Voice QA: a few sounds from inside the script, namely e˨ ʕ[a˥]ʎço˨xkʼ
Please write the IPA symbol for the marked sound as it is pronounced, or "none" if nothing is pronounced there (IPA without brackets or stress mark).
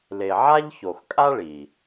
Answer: a˥